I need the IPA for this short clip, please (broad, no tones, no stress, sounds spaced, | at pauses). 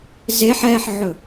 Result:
z e ħ ɛ ħ ʕ ɵ